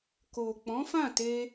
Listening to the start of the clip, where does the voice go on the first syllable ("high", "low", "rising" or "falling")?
low